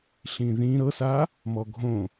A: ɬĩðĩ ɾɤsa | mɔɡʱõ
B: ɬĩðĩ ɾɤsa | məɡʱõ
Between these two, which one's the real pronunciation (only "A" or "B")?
A